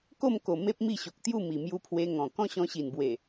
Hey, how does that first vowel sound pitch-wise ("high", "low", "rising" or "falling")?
falling